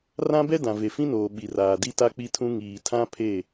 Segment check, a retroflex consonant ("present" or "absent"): absent